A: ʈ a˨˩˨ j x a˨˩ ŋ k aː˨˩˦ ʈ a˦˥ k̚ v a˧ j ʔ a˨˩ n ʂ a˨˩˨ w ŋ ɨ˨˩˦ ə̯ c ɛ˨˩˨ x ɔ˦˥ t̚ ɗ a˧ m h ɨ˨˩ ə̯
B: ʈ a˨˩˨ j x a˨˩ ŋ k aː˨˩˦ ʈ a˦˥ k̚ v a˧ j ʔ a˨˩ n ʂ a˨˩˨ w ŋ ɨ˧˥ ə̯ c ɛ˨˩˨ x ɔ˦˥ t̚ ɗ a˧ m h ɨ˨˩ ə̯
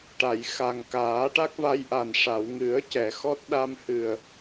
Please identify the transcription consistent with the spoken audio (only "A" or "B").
A